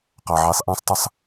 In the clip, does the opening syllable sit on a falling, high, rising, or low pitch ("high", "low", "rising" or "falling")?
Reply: low